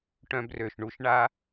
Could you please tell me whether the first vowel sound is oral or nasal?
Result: nasal